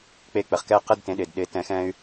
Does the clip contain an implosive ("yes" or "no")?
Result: yes